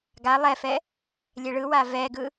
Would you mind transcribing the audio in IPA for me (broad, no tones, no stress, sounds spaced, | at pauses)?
ɡ a lˠ ɛ f ɛ | lʲ ɛ ɭ ɯ w a v ɛ ɡ ɯ